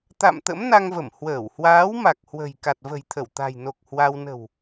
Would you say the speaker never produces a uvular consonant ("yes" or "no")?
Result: yes